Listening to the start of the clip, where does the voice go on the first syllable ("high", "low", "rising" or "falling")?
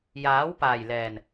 rising